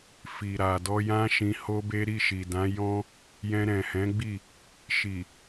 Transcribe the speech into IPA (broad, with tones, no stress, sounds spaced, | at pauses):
f i˨ ɾ a˨ d ɔ˧ j ã˦ ʃ ĩ˧ h o˦ b e˦ ɾ i˦˨ ʃ i˨ d ã˨˦ j ɔ̃˦ | j ɛ̃˧ ɾ ɛ̃˨ h ɛ̃˨˦ ɡ͡b i˦˨ | ʃ i˨